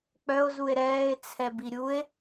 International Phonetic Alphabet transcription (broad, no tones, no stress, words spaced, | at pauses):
k͡pœo̯zue̯ ɾɛːe̯t͡sʰɛbi ɾʲue̯